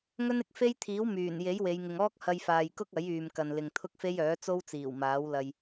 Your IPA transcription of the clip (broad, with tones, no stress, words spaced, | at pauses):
ŋɵ˥nɪ˧k̚fe˥jt̪ʰiː˨˥w myː˨˩n je˨˥jwe˨˧jŋɪ˨ŋɔː˥k̚ hɐ˧jfaː˨jkʊ˥k̚ ɐ˨˥jyː˨m kɐ˨nlɪ˨ŋt̪ʰʊ˥k̚fe˥j œː˨˥t͡so˥wt͡siː˨˩w maː˨˥wlɐ˧j